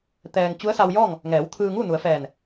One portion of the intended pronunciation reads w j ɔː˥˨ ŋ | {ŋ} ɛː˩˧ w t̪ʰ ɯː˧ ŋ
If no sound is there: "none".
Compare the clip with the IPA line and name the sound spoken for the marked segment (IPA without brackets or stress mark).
ŋ